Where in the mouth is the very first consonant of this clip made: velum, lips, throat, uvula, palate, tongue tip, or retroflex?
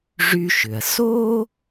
retroflex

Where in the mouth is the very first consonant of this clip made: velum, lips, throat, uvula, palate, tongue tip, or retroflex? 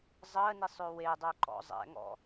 tongue tip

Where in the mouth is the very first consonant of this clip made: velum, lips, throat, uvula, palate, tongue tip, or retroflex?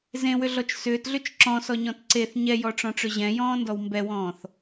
tongue tip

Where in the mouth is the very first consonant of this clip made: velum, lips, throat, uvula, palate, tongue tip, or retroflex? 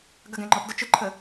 velum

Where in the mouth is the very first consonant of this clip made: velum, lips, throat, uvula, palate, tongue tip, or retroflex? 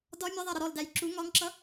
tongue tip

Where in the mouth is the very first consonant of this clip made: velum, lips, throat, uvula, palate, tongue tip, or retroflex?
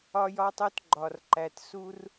palate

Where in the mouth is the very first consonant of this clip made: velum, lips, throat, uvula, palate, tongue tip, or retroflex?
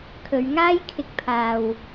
velum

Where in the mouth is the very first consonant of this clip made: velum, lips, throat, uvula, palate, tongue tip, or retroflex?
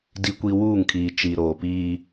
tongue tip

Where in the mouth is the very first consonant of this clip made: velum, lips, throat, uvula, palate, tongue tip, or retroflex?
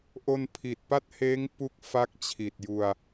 throat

